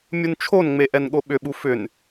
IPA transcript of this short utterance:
mʲunt͡ʃʰonŋ͡me ʔɛnɠoɓʏɓu fʏn

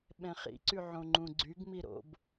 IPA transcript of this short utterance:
ɓɛ̃χḭǀy ʕõŋ͡ǃũɡ͡ǀyɡmi ɾo̰b

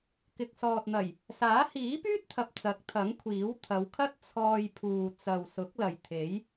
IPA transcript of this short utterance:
kɪ˨k̚sɔː˨t̚n̪ɐ˨˩j | saː˨˥ hiː˨˥pyː˥t̚t̪ʰɐ˨p̚ t͡sɐ˨˥k̚t̪ʰɐ˨˥ŋkʷʰiː˨˥w t̪ʰɐ˨˧wkʰɐ˥t̚ t͡sʰɔː˧jpʰuː˨ t͡sɐ˨wsʊ˨˥k̚ lɐ˨jt̪ʰe˨˥j

